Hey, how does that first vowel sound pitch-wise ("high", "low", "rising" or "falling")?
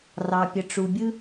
low